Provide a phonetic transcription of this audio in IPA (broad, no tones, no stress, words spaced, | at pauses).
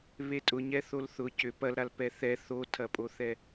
βetʼʊɲɛθol θʊ cʏ pɐlɾal pɛθɛ θotʰɐpʼoθɛ